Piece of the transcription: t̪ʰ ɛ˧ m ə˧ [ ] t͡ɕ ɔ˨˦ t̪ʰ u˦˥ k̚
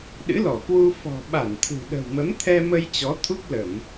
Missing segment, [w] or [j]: j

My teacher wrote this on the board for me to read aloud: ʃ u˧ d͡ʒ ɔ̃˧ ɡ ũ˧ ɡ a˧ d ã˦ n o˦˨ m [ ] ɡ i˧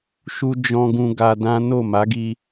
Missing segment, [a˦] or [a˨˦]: a˨˦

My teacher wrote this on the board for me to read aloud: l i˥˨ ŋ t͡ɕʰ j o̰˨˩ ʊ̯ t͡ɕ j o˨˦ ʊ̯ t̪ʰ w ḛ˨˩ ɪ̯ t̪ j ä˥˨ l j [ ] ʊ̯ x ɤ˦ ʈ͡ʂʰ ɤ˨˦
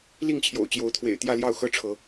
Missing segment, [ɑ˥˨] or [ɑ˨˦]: ɑ˥˨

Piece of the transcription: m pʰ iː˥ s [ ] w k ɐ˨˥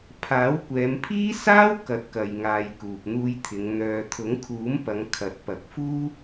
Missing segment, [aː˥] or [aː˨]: aː˥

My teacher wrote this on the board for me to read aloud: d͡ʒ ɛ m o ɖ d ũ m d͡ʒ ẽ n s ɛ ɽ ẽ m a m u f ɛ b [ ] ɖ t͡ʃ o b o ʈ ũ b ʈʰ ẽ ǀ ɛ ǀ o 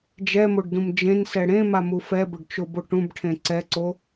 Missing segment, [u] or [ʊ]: ʊ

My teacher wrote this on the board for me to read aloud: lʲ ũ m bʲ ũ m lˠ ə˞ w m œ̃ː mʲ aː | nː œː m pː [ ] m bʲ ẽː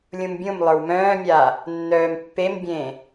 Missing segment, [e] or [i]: e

